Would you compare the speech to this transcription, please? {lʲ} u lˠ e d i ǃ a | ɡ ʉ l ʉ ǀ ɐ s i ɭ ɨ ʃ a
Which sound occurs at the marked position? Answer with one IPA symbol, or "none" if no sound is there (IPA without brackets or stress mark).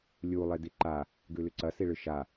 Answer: lʲ